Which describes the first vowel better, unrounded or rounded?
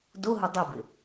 rounded